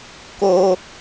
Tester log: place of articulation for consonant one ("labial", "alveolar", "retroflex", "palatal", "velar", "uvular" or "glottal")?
velar